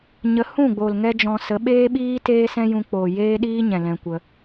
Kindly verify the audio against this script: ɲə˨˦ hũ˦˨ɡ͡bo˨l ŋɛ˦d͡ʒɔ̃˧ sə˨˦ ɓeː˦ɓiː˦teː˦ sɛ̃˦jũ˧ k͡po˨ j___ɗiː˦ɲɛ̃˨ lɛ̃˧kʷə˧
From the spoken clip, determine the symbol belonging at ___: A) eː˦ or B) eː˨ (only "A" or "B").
A